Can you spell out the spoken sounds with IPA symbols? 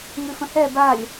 ŋ ʉ f ə̃ h ɛ b a lʲ

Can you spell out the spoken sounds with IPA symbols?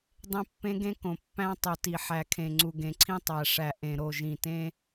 dˤ ẽ˦ pː ẽ˦ ɡ ẽ˦ k õ˨ pː æ̃˦ tˤ u˨ t i˨ ħ æ˨ kʰ ẽ˨ ŋ͡ǀ u˨ ɡ ẽ˨ ǀʰ ĩ˦ tˤ æ˨ ʂ æ˨ ʔ ẽ˨ ɾ o˦˨ ʒ ĩ˨ t ẽ˦

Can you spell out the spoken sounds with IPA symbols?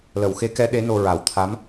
l ə˨˩˨ w x e˧˥ k ɛ˧˥ ɗ e˧˥ n o˧ ɹ a˨˩˦ w t̪ʰ a˧˥ m

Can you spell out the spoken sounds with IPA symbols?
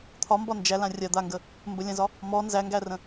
t̪ʰ ɒ m b ɒ n d͡ʒ æ l ã rʲ a d̪ a ŋ ɡ ə | m b ə lʲ ã z ɒ | m ɔ n z æ ŋ ɡ æ r ə̃

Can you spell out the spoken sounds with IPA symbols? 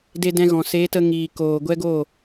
d e˧ d ɛ̃˧ ɣ ɔ̃˨ s e˨˦ t ə˧ ŋ iː˨ k oː˨ ɡʷ ɛ˦ ɡ o˦˨

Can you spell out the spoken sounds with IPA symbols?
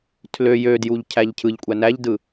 tʰ l ø j ø d j u ʎ cʰ æ ʎ cʰ ɯ ʎ kʷʼ æ n æ ʎ d ɯ

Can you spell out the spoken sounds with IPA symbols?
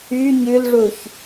y ɲ ʉ l ʐ u ç

